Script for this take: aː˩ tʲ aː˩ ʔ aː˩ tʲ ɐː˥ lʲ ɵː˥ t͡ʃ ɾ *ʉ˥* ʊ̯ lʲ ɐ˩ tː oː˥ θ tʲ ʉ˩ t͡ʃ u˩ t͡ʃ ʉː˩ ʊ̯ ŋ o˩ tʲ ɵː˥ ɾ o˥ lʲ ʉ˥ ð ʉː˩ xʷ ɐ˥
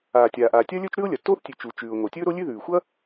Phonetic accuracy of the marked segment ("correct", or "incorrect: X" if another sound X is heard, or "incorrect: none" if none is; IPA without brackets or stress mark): correct